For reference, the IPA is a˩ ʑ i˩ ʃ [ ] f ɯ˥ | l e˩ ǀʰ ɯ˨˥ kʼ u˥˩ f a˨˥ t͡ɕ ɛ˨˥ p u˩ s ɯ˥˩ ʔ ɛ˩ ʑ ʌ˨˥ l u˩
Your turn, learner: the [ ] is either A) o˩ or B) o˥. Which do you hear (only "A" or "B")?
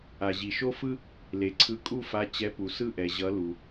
B